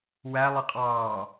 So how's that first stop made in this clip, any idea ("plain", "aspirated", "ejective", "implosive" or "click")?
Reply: ejective